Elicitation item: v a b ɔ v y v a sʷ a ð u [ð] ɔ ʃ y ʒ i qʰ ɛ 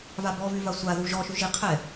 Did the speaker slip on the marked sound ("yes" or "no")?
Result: yes